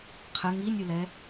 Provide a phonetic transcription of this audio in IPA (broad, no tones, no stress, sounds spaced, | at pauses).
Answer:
qʰ ə ŋ i nʲ ɯ l ɛ